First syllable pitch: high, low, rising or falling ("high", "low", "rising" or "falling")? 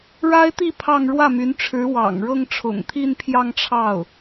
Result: high